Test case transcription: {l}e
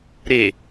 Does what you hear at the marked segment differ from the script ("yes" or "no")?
yes